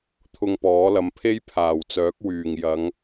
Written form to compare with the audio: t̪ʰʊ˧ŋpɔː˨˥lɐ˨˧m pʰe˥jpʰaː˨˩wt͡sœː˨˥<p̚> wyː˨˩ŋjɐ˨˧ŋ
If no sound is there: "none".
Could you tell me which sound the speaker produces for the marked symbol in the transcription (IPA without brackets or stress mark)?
k̚